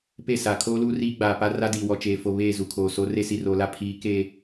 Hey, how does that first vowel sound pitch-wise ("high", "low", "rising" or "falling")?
falling